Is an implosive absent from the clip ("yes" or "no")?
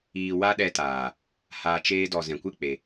no